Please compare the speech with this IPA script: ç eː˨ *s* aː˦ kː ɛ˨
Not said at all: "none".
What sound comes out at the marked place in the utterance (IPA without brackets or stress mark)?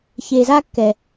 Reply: z